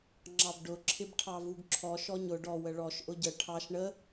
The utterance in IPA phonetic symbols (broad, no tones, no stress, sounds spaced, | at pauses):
ŋ͡ǁ ɑ b ɖ ʊ ǁʰ ɪ b ʈʰ ɑ v u ɡ ǁʰ ɔ ʃ ɔ ɲ ʊ ɖ ɔ w ə ɭ ɔ ʃ ʔ ʊ ɟ ə ʈʰ ɑ ʃ ɳ ə